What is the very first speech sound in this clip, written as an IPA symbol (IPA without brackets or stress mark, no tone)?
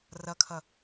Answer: r